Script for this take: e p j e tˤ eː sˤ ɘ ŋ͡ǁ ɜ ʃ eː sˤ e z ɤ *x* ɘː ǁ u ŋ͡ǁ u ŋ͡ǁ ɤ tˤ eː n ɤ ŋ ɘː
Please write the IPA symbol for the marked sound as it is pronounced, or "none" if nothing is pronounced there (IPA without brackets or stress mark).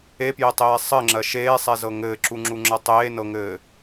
ŋ